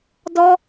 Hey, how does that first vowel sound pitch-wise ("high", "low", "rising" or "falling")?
high